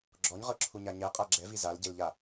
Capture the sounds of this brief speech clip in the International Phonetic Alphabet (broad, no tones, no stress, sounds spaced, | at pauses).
ɡ͡ǁ ɔ ɲ ʁ ɤ ǁʰ u ɲ a ɲ ɛ qʼ a ɡ͡ǁ ɛ v i z a l ɟ e l ʎ a